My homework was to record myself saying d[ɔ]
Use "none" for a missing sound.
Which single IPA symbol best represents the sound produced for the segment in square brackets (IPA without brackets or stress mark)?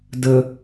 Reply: ə